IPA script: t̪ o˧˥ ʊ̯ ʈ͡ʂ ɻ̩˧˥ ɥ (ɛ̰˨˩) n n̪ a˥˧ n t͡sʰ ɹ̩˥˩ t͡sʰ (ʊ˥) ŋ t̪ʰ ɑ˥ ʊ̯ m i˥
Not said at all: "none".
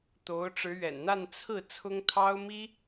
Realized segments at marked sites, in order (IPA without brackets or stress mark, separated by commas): ɛ̰˨˩, ʊ˥